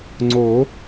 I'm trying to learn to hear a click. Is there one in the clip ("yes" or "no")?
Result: yes